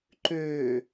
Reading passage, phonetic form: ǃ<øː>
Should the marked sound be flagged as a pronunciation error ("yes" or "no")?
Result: no